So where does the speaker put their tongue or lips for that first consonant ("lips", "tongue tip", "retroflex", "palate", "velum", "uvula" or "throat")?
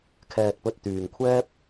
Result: velum